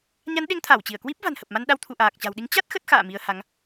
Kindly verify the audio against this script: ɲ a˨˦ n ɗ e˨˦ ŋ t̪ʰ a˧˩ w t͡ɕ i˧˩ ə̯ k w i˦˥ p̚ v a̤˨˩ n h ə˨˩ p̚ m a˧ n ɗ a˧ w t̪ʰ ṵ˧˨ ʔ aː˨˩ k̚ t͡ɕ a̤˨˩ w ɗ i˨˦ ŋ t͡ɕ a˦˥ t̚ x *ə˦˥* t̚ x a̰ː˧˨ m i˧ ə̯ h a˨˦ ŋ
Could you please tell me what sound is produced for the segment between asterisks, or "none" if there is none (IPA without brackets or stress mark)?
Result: ə˦˥